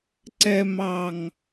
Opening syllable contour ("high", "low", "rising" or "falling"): low